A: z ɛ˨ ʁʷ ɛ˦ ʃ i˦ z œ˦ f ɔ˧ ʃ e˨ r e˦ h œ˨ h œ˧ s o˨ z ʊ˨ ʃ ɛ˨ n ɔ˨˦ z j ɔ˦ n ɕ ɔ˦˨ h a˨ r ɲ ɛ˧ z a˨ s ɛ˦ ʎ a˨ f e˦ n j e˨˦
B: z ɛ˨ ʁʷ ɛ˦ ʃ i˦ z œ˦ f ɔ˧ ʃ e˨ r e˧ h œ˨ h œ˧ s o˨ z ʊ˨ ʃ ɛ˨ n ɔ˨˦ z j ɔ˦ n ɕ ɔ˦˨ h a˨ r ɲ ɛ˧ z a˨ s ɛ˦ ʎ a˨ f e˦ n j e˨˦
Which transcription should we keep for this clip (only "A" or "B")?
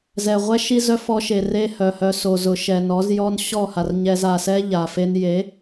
A